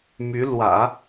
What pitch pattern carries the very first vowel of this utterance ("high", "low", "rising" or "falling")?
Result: rising